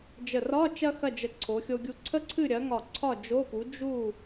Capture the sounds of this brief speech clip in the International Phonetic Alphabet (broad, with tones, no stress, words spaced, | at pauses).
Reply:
d͡ʒə˧˩rɒ˧˥˧ t͡ʃɐ˥xɐ˥˨d͡ʒə˧˩ ǀʰo˨˥xʲo˥ɡʲu˥ ǀʰə˥ǀʰɨ˥˨ɾʲɐ˨˥ ŋɒ˧˩ ǀʰɒ˥˨d͡ʒo˧˥˧pu˨˥ d͡ʒu˥˨